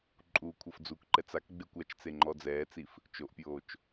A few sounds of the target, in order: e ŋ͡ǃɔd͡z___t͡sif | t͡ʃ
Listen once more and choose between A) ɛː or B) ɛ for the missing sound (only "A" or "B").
A